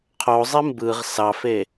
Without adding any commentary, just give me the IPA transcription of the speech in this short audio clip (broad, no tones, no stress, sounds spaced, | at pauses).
qʰ o zˤ e m b ɯː ʁ s ɑ f e